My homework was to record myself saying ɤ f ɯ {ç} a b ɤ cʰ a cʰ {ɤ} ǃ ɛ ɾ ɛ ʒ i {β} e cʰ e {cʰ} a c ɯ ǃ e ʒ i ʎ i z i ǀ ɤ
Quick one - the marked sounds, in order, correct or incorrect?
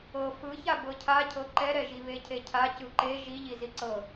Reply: correct, correct, correct, correct

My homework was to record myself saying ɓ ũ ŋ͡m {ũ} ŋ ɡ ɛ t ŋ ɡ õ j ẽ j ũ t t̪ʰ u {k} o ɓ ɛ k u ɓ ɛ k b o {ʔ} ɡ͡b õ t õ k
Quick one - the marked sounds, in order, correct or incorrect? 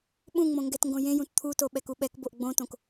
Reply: incorrect: õ, incorrect: t, correct

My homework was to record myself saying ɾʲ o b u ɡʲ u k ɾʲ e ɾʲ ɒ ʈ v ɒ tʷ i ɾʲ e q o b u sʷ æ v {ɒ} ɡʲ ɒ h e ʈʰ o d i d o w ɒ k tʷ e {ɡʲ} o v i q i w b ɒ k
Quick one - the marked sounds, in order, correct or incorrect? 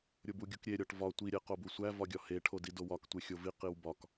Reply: correct, incorrect: xʲ

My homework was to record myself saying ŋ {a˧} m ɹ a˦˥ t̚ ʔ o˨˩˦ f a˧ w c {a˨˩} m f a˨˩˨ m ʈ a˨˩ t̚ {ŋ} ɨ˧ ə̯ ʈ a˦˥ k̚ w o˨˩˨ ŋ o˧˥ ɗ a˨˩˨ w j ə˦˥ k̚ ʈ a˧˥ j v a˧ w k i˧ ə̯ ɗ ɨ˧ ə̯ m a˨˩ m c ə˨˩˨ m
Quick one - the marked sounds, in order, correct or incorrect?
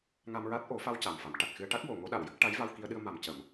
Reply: correct, correct, incorrect: x

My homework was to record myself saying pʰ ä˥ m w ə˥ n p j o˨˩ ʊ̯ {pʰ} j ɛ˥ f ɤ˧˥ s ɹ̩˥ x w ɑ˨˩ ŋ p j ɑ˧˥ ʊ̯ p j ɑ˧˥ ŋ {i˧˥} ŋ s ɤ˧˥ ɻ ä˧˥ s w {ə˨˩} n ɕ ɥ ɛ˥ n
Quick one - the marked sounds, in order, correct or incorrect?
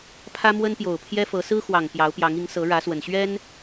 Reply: correct, correct, correct

